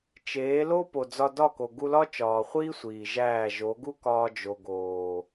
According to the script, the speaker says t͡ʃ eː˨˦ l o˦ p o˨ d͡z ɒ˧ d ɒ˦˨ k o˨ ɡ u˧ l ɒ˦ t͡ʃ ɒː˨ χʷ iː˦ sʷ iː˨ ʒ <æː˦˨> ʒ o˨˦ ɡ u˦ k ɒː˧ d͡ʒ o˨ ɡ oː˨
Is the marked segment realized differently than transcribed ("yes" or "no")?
no